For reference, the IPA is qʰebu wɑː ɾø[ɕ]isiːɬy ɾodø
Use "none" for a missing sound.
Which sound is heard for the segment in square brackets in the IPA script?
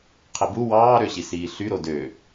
ɕ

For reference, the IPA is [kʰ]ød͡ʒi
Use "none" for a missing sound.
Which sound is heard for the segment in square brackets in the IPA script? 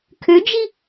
kʰ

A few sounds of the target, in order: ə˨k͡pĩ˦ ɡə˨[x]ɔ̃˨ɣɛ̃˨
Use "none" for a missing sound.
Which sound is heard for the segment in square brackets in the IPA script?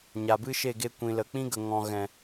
ŋ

